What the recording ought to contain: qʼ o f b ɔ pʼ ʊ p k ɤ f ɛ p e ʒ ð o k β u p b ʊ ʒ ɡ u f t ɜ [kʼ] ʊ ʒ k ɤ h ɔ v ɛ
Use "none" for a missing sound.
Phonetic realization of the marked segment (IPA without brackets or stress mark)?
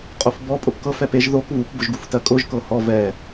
kʼ